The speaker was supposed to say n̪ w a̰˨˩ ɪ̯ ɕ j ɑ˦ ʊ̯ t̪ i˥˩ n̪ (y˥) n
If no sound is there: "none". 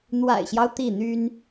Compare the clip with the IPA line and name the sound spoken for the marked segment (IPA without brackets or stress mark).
y˥